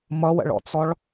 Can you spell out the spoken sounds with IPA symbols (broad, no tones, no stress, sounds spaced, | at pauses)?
m ʌ w ə̰ ɭ ɔ̰ t͡s ɔ ɭ